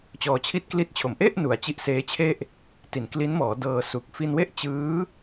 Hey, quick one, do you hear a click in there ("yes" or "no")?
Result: no